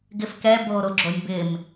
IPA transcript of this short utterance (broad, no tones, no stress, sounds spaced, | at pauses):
ɡ ɪ f k ɛ b oː ɾ o ɡ͡ǁ o nʲ b ɪː m